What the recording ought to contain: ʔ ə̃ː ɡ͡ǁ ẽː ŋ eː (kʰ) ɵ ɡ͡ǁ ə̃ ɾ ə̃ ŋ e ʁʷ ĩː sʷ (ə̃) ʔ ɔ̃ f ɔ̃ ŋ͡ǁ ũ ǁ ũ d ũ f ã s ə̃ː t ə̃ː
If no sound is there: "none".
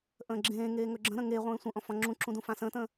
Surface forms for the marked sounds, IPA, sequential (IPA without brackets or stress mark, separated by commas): ŋ, ə̃